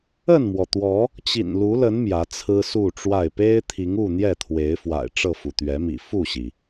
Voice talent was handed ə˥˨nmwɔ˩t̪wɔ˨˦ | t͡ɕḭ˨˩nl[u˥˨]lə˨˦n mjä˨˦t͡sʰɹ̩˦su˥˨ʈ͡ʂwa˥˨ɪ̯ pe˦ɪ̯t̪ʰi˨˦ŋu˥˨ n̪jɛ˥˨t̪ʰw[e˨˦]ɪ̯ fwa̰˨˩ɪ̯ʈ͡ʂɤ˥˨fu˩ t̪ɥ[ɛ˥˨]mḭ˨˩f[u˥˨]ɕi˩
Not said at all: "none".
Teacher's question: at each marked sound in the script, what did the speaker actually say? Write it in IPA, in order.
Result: u˨˦, e˨˦, ɛ˨˦, u˥˨

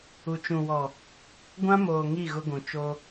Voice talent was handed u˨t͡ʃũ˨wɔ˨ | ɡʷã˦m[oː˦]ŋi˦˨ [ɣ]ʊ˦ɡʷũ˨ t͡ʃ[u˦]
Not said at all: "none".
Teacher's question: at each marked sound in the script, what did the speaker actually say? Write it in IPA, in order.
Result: oː˨, ɣ, o˦

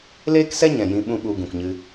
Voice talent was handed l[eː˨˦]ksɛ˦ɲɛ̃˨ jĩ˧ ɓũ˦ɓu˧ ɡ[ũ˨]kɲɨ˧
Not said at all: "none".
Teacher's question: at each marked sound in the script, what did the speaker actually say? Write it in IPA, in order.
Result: eː˦, ũ˨

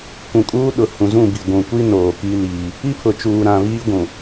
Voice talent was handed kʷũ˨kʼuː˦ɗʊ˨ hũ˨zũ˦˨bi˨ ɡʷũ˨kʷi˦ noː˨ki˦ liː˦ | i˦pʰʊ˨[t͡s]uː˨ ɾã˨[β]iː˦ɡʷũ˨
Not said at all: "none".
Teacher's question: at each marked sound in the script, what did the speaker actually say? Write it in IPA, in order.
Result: t͡ʃ, β

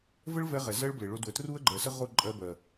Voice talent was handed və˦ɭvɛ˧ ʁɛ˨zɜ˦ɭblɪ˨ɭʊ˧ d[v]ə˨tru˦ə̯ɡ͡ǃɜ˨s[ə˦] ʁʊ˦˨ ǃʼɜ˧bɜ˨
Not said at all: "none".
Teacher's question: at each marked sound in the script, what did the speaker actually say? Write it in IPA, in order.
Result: w, ə˦

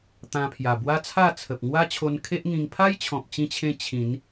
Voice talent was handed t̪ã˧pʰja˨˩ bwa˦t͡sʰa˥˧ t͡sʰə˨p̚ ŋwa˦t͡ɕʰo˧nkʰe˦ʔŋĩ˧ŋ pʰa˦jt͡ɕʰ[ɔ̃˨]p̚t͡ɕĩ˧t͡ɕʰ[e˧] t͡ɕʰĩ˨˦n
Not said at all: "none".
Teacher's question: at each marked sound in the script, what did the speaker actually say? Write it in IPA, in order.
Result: ɔ̃˨, ẽ˧

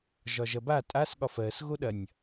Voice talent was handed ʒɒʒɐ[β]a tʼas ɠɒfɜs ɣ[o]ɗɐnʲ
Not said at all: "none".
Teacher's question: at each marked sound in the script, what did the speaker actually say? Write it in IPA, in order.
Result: b, o

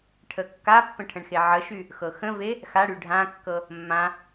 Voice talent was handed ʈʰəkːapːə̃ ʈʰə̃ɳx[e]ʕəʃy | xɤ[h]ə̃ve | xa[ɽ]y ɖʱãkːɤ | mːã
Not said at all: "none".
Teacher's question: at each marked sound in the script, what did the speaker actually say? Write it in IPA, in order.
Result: e, x, ɽ

